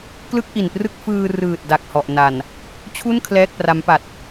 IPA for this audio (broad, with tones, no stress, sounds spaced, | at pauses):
k l ɯ˥˩ k̚ ʔ i˨˩ n p r ɯ˥˩ k̚ f ɯː˧ r ɯː˨˩ t̚ d a˨˩ k̚ h ɔ˨˩ ʔ n a˨˩ n | t͡ɕʰ u˥˩ n kʰ l ɛː˥˩ k̚ p r a˦˥ m p a˨˩ t̚